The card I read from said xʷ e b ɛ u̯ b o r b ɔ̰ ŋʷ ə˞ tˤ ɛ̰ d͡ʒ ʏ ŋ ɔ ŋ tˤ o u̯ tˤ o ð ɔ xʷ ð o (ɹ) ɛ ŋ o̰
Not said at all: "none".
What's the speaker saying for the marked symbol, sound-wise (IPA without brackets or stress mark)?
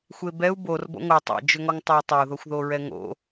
ɹ